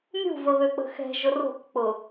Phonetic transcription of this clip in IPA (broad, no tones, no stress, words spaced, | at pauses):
mʲṳvəβøk͡pə̤ xɛ̤ʒʊ ro̤k k͡pʊ